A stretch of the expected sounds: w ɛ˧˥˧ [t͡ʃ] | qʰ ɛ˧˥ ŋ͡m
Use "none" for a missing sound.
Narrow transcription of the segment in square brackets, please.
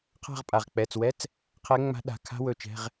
t͡s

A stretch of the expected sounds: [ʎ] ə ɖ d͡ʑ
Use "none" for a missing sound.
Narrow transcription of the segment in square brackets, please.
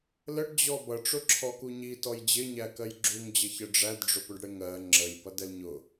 l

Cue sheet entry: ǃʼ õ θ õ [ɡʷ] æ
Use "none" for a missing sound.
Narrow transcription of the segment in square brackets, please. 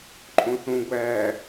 ɡʷ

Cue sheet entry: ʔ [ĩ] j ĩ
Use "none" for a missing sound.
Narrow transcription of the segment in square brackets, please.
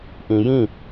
ĩ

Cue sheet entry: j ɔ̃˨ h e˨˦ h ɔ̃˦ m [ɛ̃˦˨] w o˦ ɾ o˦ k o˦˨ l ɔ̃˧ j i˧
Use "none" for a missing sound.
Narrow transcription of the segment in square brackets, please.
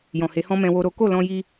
ɛ̃˧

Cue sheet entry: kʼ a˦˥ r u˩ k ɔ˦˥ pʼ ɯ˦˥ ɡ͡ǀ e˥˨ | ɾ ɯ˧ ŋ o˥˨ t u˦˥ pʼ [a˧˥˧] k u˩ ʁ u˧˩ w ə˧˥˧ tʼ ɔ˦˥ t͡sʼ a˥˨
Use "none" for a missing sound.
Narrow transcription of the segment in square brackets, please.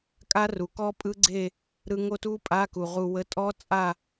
a˧˥˧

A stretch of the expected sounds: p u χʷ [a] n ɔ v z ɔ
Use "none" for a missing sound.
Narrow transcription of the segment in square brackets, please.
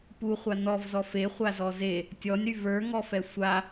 a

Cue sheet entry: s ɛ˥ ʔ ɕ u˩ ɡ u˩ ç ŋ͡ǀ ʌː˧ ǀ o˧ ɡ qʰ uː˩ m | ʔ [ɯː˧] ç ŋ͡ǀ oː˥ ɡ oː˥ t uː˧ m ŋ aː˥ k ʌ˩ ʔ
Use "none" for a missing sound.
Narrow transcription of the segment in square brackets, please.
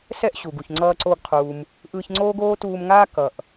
ɯː˧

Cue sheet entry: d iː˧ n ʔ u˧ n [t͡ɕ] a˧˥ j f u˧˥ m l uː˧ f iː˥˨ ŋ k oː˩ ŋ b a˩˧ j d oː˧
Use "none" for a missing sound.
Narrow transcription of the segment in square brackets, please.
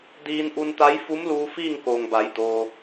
t̪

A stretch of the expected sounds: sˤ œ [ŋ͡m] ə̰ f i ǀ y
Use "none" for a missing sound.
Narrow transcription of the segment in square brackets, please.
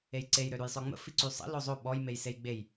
ŋ͡m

